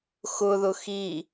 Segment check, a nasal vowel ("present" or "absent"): absent